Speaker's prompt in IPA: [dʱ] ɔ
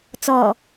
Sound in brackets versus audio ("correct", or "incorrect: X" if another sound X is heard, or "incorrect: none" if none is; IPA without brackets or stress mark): incorrect: t͡s